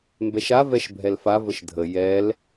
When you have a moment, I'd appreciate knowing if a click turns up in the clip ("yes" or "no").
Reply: no